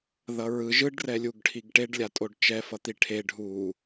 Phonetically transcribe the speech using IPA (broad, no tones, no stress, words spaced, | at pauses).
ðʌɹɯ ʒɯɖ rɛlʲuɡʈʰiɡʈeɖ lʲatʼoɖt͡ʃɛ fʌt̪iʈʰe ɖʱu